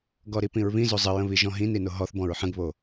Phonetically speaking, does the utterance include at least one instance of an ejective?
no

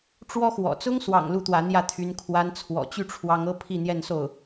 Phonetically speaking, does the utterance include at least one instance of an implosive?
no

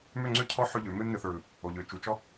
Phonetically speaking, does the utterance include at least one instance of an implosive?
no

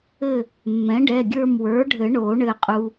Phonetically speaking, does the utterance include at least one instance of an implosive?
no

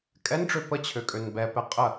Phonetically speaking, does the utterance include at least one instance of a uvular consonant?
yes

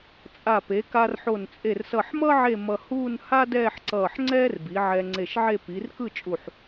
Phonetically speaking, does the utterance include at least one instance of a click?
yes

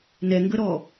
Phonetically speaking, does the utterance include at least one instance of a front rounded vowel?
no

